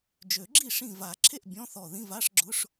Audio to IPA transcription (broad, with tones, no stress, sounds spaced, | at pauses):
d͡ʒ ø˨˩˦ ɡ͡ǁ i˥˩ ʂ ĩ˧˩ v a˨˩˦ ǁʰ e˥˩ ʔ bʲ ɔ̃˧˥˧ θ ɔ˧˩ ð ĩ˧˥˧ v a˧˥˧ ʂ ɡ͡ǁ ʊ˧˥˧ ʂ